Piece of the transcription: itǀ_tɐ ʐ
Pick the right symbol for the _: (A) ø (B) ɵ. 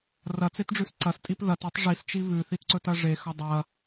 B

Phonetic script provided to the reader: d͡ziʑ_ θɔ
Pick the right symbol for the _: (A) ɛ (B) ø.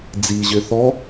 B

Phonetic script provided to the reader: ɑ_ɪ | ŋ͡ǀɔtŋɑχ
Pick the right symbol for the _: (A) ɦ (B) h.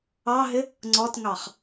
A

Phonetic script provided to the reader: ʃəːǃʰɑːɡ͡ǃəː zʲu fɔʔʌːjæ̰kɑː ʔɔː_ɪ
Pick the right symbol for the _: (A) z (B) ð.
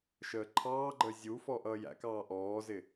A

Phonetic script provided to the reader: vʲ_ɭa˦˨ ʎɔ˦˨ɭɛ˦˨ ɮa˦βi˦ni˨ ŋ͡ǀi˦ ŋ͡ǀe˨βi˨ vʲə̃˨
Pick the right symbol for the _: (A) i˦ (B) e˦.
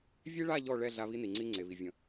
B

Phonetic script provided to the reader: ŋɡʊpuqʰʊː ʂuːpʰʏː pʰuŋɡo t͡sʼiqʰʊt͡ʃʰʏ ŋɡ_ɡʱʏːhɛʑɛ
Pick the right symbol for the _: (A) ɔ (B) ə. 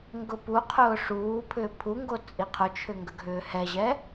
B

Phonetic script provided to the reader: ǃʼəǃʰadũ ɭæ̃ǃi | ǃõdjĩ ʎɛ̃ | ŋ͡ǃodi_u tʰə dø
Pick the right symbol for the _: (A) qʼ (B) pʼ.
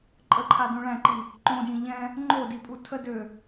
B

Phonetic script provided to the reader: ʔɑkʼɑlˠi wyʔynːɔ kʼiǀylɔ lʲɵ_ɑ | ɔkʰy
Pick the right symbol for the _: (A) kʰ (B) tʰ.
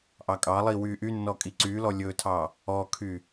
B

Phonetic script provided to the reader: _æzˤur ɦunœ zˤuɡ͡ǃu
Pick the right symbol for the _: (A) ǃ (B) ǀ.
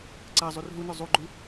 B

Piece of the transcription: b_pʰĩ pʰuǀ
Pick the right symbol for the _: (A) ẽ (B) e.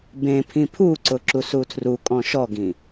A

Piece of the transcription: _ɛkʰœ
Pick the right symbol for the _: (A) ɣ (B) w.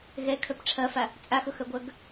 A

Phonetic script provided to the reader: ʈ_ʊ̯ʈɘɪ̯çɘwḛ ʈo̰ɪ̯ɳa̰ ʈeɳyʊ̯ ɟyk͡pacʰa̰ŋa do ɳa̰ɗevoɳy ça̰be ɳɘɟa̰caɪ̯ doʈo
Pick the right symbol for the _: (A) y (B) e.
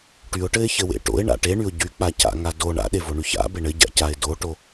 A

